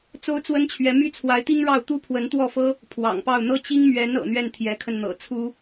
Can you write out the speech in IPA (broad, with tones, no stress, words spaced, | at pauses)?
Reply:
t͡so˥ʊ̯t͡swə˥nt͡ɕʰɥɛ˧˥ my˥t͡sʰwa˧˥ɪ̯t̪i˥ŋɻɑ˥˩ʊ̯ t̪u˥pʰwə˧˥nt̪wɔ˥˩fɤ˥ | pʰwɑ̰˨˩ŋpɑ˥˩ʊ̯ n̪ɤ˥t͡ɕi˥ŋ mɥɛ˧˥n ɤ̰˨˩n̪ɥɛ˥˩n t̪ʰjɛ˧˥kʰə˧nn̪ɤ̰˨˩ t͡sʰu˥